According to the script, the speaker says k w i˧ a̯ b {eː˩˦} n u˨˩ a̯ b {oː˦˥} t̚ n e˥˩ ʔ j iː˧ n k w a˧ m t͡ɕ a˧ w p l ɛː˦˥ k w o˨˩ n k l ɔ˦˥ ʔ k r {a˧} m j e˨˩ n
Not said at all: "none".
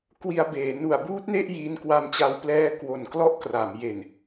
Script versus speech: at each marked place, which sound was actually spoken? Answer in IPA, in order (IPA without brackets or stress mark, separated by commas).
eː˩˦, uː˦˥, a˩˦